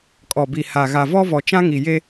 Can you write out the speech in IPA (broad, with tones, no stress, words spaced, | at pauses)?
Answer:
kʼɔ˨bi˨ha˨ ɣa˨vɔ˦vɔ˨t͡ʃã˦ ŋi˨je˦